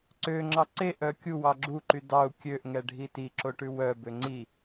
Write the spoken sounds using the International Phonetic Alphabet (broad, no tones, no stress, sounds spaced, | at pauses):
ǀ ø ŋ͡ǁ ɑ ǀ e ʔ œ kʲ u w ɑ ɡ͡ǁ u ǃ y d ɑ u̯ kʲ ø ʔ ŋ ɛ ɖʱ i t i ǁ o ʈ ʉ w œ b ø ŋ͡ǀ i